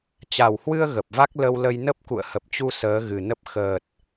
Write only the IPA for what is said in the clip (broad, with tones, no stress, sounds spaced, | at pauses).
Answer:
t͡ɕ a˨˩ w h w ɨ˧ ə̯ ɣ ə˨˩ p̚ v a˦˥ k̚ l ə˧ w l ə˧ j n ə˦˥ p̚ k ṵ˧˨ ə̯ h ə˨˩ p̚ t͡ɕ u˧ s əː˨˦ ɣ ɨ˨˩ n ə˦˥ p̚ x əː˨˩ t̚